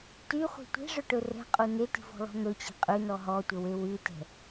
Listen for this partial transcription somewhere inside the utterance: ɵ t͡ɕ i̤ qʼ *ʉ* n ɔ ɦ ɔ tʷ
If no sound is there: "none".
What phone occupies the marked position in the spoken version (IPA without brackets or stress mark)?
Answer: ʉ